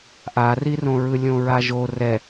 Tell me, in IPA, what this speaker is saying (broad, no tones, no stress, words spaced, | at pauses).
ʔarirõɹɯ lʲõɹaʒo rɛ